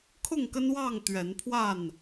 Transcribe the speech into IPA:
kʰ ʊ˥˨ ŋ k ə˦ n w ɑ˥˨ ŋ t̪ ɥ ɛ˨˦ n pʰ w a˥˨ n

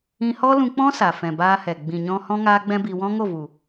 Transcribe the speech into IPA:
ĩ˧ h ɔ˦ l ũ˧ k͡p ɔ̃˦ s a˨ f ɛ̃˨ b aː˧ h ɛ˨ ɡ͡b ĩ˨ ɲ ɔ̃˧ h ɔ̃˦ ŋ aː˦ ɡ͡b ɛ̃˦ b i˧ w ɔ̃˦ ŋ o˦˨ v u˨

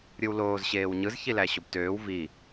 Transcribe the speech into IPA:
ɾʲ ɯ w l oː z ɕ eː w ɲ ɯ z ç i l æ ɕ o b t øː w v i

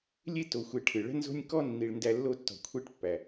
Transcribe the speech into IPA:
lʲ e˥ t o˨ xʷ e˨ ʈʰ ɨ˩ ɭ ə̤˥ n z o̤˥ nʲ k ɔ˥ nː i˨ ɭ n d æ˦ lː o˦ tː ɔ̤˨ kʷʰ e˦ ʈ pː æ˩

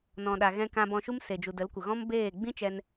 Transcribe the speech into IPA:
n ɔ̃˨ ɗ a˨ ɣ ɛ̃˧ k ã˧ b ɔ̃˧ ʃ u˦ m s e˨ d͡ʒ u˨ d ə˨˦ l kʷ ə˨ ɣ ɔ̃˦ m b eː˦˨ ɡ͡b ĩ˦ t͡ʃ ɛ˧ n

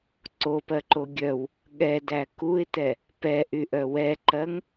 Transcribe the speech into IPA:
ǀ o p ɜ ǃ o ɡʲ œ w | ɠ ɛ d æ k u ɪ̯ t ɛ | p ɛ ʔ y ʔ œ w ɛ ǃ ɜ ŋ

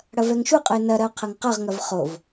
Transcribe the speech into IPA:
ɽ ɐ v ɛ ŋ ʃ u qʼ ə ɪ̯ n ɐ ɾ ɐ ʊ̯ qʰ ɐ ŋ q ʌ ʁ ŋ ɐ v χ o v

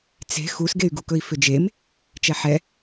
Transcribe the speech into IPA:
t͡s e̤ x u s ɡ e y̯ ɡ u k ɵ i̯ f ʏ d͡ʒ e m | t͡ʃ ɛ ħ ɛ

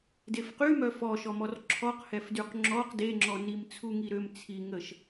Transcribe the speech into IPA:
d e f q y m œ f ɔ ʃ ɔ m ɔ r ǁʰ ɔ q h ɛ f d y q ŋ͡ǁ ɔ q d e ŋ͡ǁ ɔ n i m t͡sʰ u ŋ i ɾ ø m t͡sʰ i ŋ ə ʃ

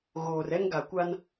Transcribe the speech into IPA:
ɣ oː˨ r ɛ˦ ŋ ɡ a˨ kʷ a˦ n

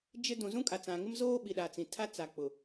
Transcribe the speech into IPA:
d͡ʒ ɪ˦ d ũ˨ z ũ˦ kʼ a˨ t͡s ã˨ ŋ ɪ˦ m z oː˦ ɓ i˨ ɗ aː˨ t͡s ĩ˨ tʰ a˦ t͡s a˨ k͡p ʊ˨

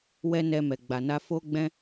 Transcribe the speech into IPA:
w ɛ˧ n ɛ˧ m ɛ˧ ɡ͡b a˧ n a˦ f o˧ ɡ͡b ɛ̃˧

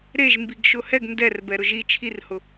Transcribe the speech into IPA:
ɾ e ʒ m b i ɡ ʃ ʊ h ɛ ɡ n d ɛ r b ɛ ɾ ʊ ʒ i t͡ʃʰ i r h ʊ

